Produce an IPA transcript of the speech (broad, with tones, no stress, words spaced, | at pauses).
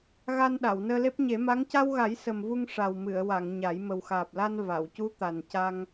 ɣa˧n ɗa˨˩˨wnəː˧le˦˥p̚ ɲe˨˩˦ma˧˥ŋ ca˧wɣa˨˩˦j sə˨˩mvu˧ŋ ʂa˨˩wmɨ˨˩˨ə̯wa˨˩˨ŋ ɲa˨˩˦j mə˨˩wxaː˨˩p̚la˧n va˨˩˨w cu˧˥ t̪a˨˩n ca˧ŋ